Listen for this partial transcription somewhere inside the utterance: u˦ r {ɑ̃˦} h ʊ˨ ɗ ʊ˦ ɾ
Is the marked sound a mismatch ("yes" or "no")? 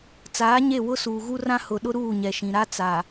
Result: yes